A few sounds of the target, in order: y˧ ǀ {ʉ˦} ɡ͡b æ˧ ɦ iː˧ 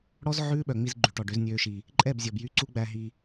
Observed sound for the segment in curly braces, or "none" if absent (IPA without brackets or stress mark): u˦